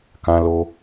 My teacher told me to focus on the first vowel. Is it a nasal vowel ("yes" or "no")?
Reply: yes